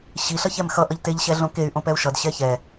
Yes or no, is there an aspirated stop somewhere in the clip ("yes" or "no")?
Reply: no